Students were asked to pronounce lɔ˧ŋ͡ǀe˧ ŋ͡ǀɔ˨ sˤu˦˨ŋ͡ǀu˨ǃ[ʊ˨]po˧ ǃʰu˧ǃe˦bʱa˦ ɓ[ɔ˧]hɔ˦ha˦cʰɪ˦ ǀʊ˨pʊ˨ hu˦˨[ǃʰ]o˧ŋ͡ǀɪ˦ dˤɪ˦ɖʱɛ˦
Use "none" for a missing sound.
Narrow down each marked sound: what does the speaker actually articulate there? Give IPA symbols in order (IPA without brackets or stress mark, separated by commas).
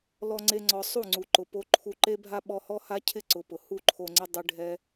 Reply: ʊ˨, ɔ˧, ǃʰ